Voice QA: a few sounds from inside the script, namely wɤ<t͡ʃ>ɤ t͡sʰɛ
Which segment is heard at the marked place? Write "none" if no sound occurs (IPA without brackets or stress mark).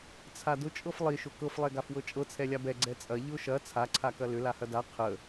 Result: t͡ʃʼ